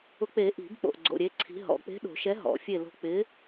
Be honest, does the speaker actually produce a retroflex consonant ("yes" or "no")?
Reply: no